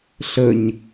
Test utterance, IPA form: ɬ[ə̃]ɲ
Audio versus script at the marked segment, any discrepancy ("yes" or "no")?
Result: yes